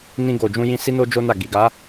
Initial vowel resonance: nasal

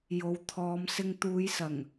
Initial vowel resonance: oral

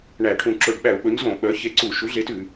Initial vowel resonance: oral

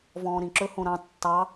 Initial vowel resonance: nasal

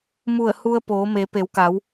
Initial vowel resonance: oral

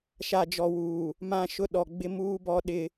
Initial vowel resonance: oral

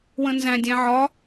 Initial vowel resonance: nasal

